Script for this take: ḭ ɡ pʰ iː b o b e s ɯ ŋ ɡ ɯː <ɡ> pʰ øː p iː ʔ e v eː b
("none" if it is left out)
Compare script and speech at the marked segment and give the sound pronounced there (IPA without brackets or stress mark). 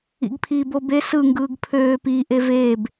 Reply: ɡ